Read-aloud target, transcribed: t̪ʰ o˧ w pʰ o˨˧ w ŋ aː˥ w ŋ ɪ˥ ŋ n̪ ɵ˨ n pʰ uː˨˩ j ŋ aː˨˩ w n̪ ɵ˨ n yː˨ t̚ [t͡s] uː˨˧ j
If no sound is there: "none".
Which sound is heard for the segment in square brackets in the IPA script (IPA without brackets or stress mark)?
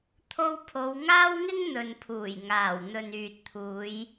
t̪ʰ